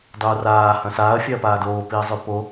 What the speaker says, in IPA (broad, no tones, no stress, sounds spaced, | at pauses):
dˤ uː r aː h ɐ̃ s aː ɐ̯ fʲ a ɐ̯ p aː d oː p i ɐ̯ zˤ ʉ p o